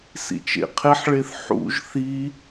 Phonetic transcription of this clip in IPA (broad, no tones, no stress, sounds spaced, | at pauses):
s ḭ t͡ʃ ḛ qʰ e ħ ɭ e θ ħ ṵ ʒ θ i